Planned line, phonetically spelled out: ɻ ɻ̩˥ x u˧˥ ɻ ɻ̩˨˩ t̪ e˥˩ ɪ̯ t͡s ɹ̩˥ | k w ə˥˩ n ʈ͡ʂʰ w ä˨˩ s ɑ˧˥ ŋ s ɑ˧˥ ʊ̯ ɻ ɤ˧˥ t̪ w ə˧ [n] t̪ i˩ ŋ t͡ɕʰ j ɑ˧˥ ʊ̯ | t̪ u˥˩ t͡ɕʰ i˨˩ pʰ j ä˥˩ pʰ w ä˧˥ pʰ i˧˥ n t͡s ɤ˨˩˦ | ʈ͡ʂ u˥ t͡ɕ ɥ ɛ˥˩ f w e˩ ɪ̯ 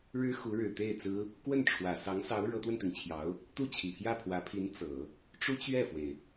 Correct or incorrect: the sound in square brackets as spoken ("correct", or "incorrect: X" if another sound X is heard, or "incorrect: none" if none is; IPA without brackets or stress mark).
correct